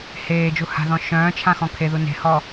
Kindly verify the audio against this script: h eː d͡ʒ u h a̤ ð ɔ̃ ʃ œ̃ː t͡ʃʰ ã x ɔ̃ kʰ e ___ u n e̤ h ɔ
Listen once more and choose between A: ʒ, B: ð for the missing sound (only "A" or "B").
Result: B